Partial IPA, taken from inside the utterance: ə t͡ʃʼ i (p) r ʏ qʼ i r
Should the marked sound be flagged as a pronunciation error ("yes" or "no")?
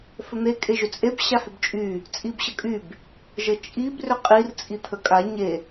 yes